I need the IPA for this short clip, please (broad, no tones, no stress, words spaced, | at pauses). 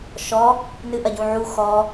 ʃɔ | nɨʔɐɟũʕu xɔ